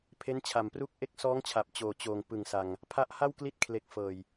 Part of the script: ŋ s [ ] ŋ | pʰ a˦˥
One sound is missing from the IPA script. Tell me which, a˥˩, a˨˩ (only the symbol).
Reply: a˨˩